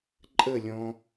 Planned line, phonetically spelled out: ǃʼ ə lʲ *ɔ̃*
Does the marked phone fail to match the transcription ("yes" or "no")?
no